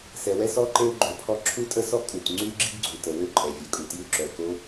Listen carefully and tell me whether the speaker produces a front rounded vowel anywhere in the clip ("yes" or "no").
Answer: yes